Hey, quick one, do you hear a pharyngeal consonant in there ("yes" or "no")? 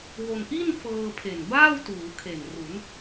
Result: no